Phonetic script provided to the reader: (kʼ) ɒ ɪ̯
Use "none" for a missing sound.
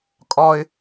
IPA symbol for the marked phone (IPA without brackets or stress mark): kʼ